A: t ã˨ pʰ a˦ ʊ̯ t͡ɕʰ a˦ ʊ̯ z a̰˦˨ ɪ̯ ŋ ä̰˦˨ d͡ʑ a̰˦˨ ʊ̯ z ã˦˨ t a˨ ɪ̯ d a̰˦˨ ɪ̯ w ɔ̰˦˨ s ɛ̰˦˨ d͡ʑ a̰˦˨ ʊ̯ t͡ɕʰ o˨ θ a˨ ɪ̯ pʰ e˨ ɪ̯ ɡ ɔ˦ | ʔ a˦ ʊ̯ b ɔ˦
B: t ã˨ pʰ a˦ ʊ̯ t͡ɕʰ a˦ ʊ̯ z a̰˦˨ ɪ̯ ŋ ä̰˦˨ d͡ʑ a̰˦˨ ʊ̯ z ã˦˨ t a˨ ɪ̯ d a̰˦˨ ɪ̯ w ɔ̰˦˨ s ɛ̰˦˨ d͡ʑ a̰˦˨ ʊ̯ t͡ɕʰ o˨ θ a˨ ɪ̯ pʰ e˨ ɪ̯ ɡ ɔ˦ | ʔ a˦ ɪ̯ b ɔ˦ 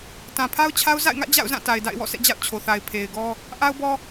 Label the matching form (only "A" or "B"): A